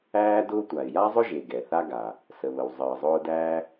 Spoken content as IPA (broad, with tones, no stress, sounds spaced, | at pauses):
æː˥ d ʊː˥ tʷ a˩ ɪ̯ j a˥ zˤ ʊ˥ ʒ e˩ ɡ ɛ˩ θ a˥ ɡ a˩ | s ə˩ β ə˩ w zˤ əː˩ zˤ ʊː˥ d æ˥